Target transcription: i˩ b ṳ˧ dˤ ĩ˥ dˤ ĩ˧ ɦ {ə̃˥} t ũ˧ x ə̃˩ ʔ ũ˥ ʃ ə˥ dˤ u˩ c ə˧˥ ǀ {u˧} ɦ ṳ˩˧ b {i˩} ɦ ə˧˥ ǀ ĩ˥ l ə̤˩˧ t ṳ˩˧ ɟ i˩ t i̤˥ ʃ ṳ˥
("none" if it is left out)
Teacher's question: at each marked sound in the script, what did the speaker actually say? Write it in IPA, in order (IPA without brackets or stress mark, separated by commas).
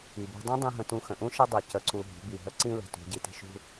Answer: ə̃˧, u˧, i˩